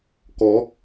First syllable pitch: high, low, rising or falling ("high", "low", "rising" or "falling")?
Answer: rising